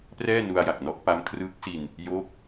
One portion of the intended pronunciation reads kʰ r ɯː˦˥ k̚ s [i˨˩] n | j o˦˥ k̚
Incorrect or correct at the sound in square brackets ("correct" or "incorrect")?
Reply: incorrect